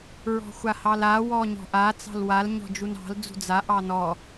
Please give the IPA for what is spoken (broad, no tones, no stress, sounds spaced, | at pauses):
ɹ ɔ̤ xʷ a h ɑ l a w ɔ ɲ ɔ̤ ʔ a t͡s ɑ̤ l w a l ɲ ɔ̤ d͡ʒ u n ɑ̤ l d͡z ṳ d͡z a ʔ ɑ n ɔ